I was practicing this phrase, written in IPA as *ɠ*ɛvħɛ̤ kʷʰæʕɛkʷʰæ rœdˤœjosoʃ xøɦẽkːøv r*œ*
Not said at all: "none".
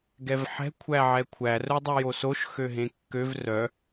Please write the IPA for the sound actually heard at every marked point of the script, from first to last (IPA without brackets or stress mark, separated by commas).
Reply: ɡ, œ